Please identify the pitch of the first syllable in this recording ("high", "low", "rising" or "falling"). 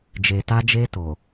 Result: low